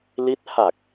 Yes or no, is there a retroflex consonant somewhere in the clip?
no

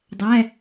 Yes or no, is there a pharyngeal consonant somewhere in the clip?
no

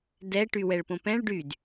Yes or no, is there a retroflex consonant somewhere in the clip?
yes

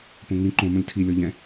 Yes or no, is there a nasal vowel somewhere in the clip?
yes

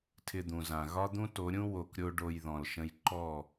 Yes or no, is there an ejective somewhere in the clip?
no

